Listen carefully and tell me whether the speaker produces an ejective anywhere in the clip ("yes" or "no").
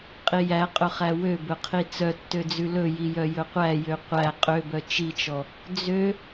yes